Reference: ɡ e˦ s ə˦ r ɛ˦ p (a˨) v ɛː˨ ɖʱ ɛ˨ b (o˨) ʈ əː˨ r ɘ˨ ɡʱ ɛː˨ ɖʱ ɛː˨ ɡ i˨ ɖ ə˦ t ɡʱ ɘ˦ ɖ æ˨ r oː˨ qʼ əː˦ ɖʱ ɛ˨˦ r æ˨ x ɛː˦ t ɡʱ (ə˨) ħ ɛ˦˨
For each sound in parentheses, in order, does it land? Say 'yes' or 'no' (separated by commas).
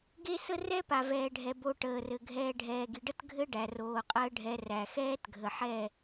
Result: yes, yes, yes